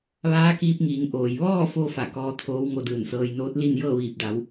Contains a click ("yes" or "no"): no